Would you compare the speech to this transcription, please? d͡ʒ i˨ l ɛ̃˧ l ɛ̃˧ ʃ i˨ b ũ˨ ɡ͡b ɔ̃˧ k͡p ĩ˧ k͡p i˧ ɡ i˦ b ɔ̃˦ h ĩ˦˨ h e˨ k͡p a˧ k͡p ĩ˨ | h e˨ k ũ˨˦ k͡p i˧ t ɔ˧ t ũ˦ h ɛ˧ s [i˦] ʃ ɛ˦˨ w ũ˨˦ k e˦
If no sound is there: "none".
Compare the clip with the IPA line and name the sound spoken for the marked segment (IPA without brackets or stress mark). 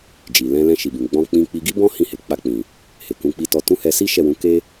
i˦